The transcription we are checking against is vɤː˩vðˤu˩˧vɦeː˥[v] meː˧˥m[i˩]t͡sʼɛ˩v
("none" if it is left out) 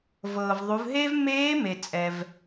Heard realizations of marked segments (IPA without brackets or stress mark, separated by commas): v, e˩